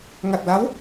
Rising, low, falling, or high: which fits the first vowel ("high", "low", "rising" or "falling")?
low